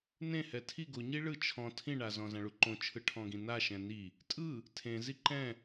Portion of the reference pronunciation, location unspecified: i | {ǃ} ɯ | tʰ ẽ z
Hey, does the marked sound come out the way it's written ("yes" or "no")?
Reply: no